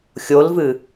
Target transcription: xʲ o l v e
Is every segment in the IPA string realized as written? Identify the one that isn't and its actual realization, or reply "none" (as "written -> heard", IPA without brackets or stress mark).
e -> ɨ